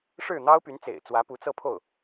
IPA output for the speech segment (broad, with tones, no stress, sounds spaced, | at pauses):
ʂ ɻ̩˥˩ n̪ ɑ˥ ʊ̯ p y˧˥ n t͡s ḛ˨˩ ɪ̯ t͡s w ä˧˥ p u˧˥ t͡s ɤ˥˧ pʰ o˥˩ ʊ̯